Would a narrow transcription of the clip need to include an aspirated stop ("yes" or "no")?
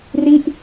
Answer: no